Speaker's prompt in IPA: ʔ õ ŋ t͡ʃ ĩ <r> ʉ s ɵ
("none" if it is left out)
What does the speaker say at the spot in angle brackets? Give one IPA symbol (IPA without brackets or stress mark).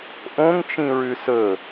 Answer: ɹ